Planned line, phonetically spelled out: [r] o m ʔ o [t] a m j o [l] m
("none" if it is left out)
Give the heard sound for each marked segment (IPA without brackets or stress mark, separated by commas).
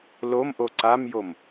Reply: l, ǀ, none